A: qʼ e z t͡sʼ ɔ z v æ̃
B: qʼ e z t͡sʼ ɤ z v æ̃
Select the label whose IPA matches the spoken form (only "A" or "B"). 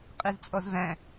A